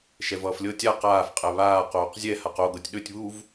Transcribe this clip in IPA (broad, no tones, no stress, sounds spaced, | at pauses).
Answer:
ʃ ɛ v ʌː f lʲ ɤ tʲ a q aː f qʼ ɛ β aː q oː q zʲ ɛ h a q o ɡ ɤ tʲ ɗ ɵ tʲ β u v